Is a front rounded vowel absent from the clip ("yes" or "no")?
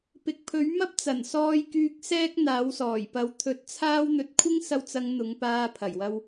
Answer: no